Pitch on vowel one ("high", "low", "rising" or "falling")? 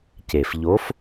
low